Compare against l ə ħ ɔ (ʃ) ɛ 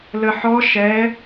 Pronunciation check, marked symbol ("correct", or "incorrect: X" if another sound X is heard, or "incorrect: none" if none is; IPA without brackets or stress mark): correct